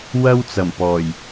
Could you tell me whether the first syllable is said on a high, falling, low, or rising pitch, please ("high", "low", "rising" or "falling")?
high